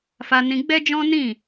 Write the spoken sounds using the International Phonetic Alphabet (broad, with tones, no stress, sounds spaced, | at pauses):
f a˧ n ĩ˧ ɡ͡b ɛ˦ d͡ʒ ɔ̃˦ n ĩ˦˨